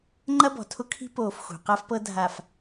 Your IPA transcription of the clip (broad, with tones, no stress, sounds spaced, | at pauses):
ŋ͡ǃ ɐ˦ b ɔ̤˨ tʰ ʊ˦ kʰ i̤˦ p oː˨ f x ṳ˨ q a˦ f p ɤ˦ dʱ a˨ f